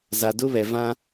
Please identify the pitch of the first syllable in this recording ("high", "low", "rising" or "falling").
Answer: low